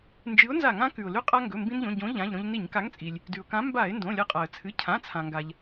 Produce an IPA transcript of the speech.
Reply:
nd͡ʒɨ˨˥ʊ̯nza˧˩˧ŋã˨˥ kʉ˩ʊ̯lʉ˧qʼa˧ ŋɡɵ˩˧˩mbĩ˧nʎõ˩˧˩ ɟõ˨˥ ʎã˩˧˩ʎɾõ˧ʎ ni˧˩˧ɲka˨˥ŋt͡sʼi˩lʲ | dʉ˩ʊ̯kã˨˥ mba˧˩˧ɪ̯ ndõ˩˧˩lʲɐ˧qʼa˩ə̯ t͡sʰɨ˩˧˩cʰã˩˧˩t͡sʰã˩ŋɡa˩ʎ

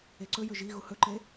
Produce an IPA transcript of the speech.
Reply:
eǀɵjɵ ʒi ɣuhɵǃe

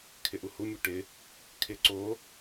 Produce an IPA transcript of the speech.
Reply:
kʰɪʔuhu mʲuʈɪ | kʰɪ ǀo

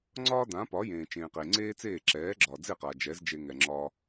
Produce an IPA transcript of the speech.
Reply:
ŋ͡ǀɒː˥ dã˩˥pɒ˩˥ jẽː˩t͡ʃẽː˩ qe˩ŋ͡ǀeː˥t͡seː˥˩ ǁɛː˩˥ɡ͡ǁɒː˩d͡ze˥˩ qa˩ d͡ʒɛ˩˥zd͡ʒe˧ ŋɛ˩ŋ͡ǁɒ˧

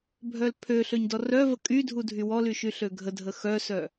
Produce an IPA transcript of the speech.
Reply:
bʱœlpʰøɬøɲ dɔrœvə kʼydʱu dʱywɔly ʃyɬøɡʱədʱə xœsœ

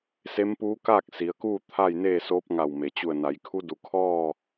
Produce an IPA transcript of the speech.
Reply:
se˧˥mpuː˧˥kaː˥˨k̚ si˩˧ə̯kuː˥˨ t̪ʰa˥˨j neː˥˨soː˧˥p̚ ŋa˧˩w me˩t͡ɕu˧˩ə̯na˩˧jkʰu˧˥ du˩˧kʰɔː˥˨

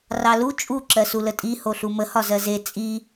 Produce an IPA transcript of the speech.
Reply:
rɑlu t͡ʃʼu ǁɜsulətʼi hoɬumə hɒzɜze t͡sʼi

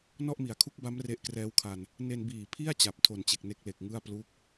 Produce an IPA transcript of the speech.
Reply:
nɔ˥˩ʔmi˩˦a̯kʰu˦˥k̚ba˦˥m re˦˥ʔkrɛː˦˥wkʰa˧n | ne˧nbiː˨˩pʰi˥˩a̯ t͡ɕa˨˩p̚tʰo˨˩nt͡ɕe˨˩k̚ ne˥˩k̚le˨˩k̚ŋɯ˥˩a̯ plu˥˩k̚

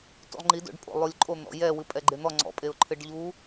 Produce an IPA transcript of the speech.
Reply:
tṵlˠŋ͡ǃido̰ɖpʼo̰ lˠulʲǃʼon̪ɔ̰ jɛwɨ pʼɛɡ͡ǃen̪ɔ ŋ͡ǀɔ̰pʼeʊ̯ǃʰɨɖ ʎu

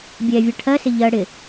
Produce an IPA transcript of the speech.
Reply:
bʲɛvʲɜ ʈʰɜsɪ ʎɜ ɽɪ

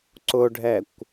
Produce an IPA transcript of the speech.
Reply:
ǀʊɖʱɛkʷ

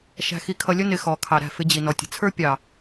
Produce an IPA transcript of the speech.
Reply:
ʃæ̤˨xi˨kʰʌ˨ lʲə˦ nɪ˨ xɔ˨kʰɑ˨ɾæ̤˦˨ fɪ˦d͡ʑi˨ nɔ˨tʲə̤˨ t͡sʰə˞˦pʲɑ˨

